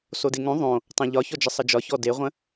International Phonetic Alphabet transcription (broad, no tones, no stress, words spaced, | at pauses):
sodeŋõ ðˤõ | tˤẽʎɒçɔd͡ʒə sˤəd͡ʒɒçɔ deʁʷə̃